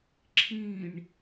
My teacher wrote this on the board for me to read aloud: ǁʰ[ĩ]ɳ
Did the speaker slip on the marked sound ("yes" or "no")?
no